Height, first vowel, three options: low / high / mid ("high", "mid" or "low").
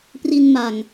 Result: high